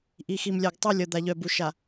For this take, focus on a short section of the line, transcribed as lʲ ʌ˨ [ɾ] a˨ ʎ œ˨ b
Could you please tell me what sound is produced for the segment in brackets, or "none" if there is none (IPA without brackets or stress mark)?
d̪